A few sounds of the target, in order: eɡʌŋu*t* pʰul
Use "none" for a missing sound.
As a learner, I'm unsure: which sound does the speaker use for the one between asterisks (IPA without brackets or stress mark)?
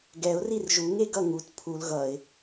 t